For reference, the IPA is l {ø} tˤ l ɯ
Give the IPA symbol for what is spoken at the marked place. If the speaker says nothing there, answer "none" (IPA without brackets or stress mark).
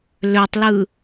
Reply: ø